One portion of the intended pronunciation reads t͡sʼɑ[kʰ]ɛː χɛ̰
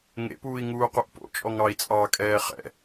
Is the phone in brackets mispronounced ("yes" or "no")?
yes